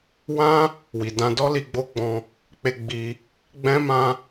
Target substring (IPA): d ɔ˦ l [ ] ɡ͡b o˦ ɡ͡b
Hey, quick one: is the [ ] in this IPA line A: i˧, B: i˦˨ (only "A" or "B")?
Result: A